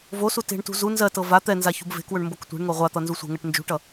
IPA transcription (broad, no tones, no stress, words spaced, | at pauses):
vosu te̤ɳtṳ zu nzɜtɤ va t̪ɛnza çṳbve̤kwɵɳ mboktʷe̤ɳŋo ʁʷat̪ʌ nzusʷe̤ŋɜʈ nd͡ʒṳʈʌ